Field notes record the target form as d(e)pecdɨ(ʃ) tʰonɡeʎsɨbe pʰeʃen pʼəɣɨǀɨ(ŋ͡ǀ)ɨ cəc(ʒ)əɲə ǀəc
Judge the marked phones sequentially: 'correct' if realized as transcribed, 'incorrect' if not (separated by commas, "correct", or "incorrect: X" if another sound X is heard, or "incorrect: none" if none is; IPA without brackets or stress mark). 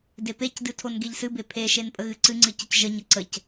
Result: correct, incorrect: none, correct, correct